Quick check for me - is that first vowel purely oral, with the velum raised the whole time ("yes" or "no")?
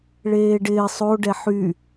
yes